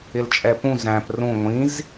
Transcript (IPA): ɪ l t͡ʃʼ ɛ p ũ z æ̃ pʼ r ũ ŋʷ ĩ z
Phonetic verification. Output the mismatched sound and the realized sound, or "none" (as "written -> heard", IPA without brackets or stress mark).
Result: pʼ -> p